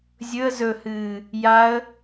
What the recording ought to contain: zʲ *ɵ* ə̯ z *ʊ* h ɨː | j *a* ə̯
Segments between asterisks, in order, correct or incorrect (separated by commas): correct, incorrect, correct